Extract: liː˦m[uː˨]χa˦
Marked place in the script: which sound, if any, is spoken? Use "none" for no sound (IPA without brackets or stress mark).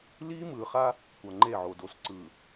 ɯː˨